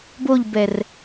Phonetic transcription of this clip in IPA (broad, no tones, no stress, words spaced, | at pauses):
boʎbɛr